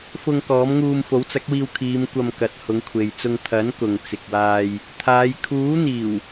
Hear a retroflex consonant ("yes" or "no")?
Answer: no